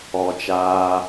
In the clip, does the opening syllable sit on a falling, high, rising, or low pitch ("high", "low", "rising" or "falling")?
low